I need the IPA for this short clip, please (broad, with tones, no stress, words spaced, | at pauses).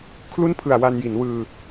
kʰlu˥˩npʰɯ˨˩a̯ wa˧nji˩˦nwɯː˧